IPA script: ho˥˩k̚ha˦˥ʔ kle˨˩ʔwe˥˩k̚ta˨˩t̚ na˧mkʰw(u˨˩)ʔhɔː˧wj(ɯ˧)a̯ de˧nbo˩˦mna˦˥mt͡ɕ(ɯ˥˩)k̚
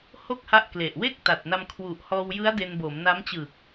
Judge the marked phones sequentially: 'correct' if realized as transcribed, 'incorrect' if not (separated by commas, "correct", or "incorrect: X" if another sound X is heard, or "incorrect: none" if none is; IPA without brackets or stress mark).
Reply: correct, incorrect: ɯ˦˥, incorrect: ɯ˨˩